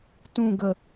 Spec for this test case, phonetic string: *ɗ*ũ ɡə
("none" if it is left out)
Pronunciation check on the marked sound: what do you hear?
t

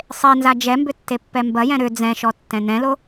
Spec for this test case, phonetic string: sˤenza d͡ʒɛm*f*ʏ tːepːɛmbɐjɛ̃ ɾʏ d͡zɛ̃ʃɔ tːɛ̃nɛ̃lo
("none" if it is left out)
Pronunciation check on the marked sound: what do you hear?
b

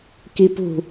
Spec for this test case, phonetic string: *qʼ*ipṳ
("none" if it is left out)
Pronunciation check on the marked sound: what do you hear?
k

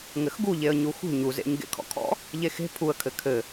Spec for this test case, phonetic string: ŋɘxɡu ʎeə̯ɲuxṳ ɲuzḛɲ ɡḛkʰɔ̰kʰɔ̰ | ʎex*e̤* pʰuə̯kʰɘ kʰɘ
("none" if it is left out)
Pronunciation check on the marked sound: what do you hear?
e̤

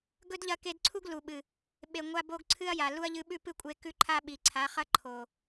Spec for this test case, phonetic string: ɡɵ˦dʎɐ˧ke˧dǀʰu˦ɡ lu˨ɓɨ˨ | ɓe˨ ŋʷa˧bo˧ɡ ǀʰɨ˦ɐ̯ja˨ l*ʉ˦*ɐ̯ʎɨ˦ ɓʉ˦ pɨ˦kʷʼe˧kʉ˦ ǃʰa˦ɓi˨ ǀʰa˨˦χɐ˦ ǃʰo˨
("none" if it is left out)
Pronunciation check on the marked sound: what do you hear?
u˦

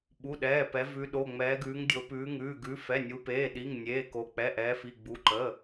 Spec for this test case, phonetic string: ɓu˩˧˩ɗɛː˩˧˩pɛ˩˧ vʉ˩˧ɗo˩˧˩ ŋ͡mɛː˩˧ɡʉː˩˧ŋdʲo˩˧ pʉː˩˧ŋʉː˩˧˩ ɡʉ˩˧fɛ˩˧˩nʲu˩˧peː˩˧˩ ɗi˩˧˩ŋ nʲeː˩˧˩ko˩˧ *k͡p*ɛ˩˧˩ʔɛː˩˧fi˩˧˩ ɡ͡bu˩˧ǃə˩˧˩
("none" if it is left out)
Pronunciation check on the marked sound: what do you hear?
k͡p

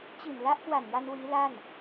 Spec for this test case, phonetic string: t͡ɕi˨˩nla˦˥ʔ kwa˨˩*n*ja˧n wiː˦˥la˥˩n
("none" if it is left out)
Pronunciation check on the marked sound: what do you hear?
n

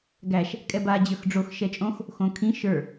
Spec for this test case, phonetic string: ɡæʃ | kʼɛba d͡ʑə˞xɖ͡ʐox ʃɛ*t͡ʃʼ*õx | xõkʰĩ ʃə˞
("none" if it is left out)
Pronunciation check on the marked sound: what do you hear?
t͡ʃʼ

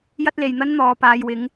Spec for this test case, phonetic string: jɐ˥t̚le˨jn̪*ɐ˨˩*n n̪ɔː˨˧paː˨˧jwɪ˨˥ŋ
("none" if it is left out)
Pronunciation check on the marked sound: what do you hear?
ɐ˥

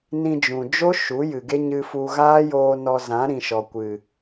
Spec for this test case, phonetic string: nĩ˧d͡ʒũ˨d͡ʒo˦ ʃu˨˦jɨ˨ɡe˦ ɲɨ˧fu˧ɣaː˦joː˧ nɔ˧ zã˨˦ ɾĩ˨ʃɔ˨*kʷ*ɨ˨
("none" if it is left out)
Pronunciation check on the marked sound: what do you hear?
kʷ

